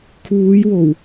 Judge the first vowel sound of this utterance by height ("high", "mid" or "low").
high